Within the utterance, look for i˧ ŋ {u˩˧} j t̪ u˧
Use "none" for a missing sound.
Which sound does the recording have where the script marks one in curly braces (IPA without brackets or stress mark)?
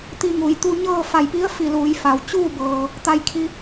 u˩˧